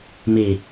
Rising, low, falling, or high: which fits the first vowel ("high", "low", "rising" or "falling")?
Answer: low